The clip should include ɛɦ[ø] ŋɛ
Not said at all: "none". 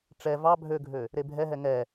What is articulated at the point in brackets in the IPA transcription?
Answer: ɛ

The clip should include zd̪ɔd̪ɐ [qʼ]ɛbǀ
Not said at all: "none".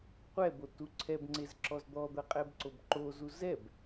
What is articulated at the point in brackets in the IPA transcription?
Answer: qʼ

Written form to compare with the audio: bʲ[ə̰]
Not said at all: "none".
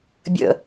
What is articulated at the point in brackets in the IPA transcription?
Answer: ə̰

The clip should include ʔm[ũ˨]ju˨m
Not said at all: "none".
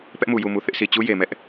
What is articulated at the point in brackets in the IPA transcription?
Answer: u˨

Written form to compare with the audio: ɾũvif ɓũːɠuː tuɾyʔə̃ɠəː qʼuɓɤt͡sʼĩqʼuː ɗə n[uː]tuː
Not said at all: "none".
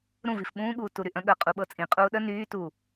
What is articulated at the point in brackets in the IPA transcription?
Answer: yː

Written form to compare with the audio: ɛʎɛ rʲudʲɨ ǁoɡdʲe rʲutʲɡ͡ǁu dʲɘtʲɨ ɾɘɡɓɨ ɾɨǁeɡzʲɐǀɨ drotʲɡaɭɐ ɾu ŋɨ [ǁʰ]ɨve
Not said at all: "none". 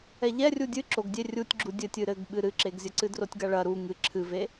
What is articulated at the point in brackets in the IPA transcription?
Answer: ǁʰ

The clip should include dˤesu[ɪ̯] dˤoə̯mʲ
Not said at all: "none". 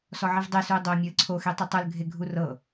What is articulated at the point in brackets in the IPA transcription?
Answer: ɪ̯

